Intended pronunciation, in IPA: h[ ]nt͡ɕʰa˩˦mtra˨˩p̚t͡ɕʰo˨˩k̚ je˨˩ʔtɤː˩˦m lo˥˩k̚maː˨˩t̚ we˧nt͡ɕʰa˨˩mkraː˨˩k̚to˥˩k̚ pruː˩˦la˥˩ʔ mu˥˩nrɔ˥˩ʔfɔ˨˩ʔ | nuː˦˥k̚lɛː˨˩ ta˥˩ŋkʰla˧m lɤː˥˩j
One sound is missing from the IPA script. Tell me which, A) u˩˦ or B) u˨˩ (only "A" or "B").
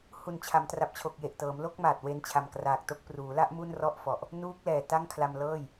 B